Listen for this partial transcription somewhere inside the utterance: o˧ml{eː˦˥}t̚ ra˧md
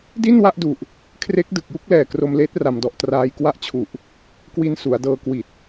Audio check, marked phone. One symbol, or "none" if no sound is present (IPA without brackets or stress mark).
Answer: eː˦˥